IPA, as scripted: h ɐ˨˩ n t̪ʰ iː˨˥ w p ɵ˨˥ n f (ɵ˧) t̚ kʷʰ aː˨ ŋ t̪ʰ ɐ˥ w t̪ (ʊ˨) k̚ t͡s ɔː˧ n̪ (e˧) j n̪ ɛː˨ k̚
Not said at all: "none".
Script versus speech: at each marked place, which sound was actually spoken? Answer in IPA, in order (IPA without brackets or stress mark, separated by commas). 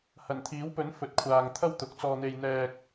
ɵ˨˥, ʊ˨˥, e˧